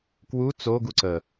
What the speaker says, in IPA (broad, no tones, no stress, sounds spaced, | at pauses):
k w u t͡s o ɡ u ǀ ə